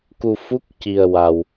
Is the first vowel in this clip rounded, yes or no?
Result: yes